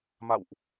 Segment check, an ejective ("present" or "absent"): absent